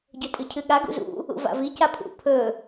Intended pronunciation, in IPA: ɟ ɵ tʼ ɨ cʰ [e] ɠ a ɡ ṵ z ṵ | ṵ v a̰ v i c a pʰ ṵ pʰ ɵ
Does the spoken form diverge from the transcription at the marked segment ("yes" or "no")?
yes